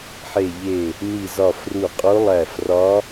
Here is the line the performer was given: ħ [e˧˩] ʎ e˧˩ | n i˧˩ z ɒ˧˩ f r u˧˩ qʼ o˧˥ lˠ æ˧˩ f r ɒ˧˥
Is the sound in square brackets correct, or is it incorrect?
correct